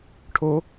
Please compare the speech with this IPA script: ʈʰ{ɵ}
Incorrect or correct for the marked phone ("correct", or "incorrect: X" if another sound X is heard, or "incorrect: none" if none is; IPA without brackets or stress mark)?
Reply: incorrect: o